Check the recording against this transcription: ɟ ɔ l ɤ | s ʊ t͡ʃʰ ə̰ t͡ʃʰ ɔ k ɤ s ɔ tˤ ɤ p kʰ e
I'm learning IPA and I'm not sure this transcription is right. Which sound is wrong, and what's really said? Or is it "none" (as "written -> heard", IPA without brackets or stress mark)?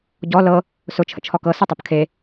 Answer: none